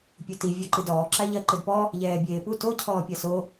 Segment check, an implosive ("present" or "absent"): absent